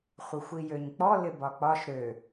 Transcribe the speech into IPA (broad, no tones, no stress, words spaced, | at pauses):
χʷɪxʷijøɲk͡pɔ lɪbɒk͡pɒʃ ɾø